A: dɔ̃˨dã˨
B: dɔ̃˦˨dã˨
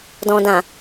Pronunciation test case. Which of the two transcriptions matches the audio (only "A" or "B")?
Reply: A